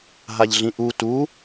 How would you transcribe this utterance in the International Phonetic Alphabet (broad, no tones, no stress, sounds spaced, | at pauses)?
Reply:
ɦ a ʎ ɮ ĩ ʔ u t u